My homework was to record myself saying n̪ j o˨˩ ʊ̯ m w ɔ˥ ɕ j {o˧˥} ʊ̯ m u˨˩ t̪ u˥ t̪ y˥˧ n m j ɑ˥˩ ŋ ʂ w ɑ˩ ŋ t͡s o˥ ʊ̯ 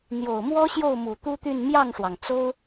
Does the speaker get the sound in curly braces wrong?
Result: yes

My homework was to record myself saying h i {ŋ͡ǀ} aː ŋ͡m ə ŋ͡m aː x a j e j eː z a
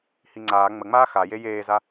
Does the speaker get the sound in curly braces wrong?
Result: no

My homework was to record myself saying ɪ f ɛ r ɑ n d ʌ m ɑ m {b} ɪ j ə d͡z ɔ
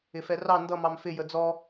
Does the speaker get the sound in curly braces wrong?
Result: yes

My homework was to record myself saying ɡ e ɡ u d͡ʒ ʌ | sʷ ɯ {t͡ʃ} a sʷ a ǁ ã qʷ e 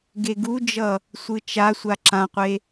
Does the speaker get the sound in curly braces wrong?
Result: no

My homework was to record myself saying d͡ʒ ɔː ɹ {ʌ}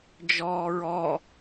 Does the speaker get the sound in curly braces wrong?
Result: yes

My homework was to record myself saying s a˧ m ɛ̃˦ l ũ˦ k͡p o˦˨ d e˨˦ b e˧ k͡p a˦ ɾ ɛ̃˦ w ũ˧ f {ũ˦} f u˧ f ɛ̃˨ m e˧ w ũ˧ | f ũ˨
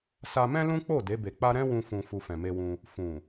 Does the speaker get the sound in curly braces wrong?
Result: yes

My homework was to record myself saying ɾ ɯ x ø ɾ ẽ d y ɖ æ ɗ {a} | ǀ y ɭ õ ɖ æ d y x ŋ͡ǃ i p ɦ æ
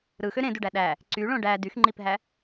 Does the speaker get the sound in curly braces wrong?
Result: yes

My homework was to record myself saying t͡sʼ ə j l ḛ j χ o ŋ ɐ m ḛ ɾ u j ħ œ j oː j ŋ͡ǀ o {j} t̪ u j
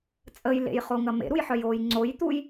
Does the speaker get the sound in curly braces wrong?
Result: no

